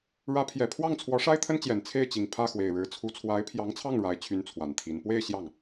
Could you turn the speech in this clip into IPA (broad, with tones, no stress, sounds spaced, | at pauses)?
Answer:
ɻ ä˧˥ pʰ j ɛ˨˩ pʰ w ɑ˥˩ ŋ t͡sʰ w ɔ˧˥ ʂ a˥ ɪ̯ t̪ʰ ə˥ n t͡ɕ j ɛ˨˩ n t͡sʰ e˥˩ ɪ̯ t͡ɕ i˨˩ ŋ pʰ ä˥˩ x w e˨˩ ɪ̯ ɻ ɻ̩˧˥ t͡sʰ u˧˥ t͡sʰ w a˧˥ ɪ̯ pʰ j ɑ˧˥ ŋ t͡sʰ ɑ˥˩ ŋ ɻ a˧˥ ɪ̯ t͡ɕʰ y˧˥ n t͡sʰ w a˨˩ n t̪ʰ i˧˥ n p w e˥˧ ɪ̯ ɕ j ɑ˥˩ ŋ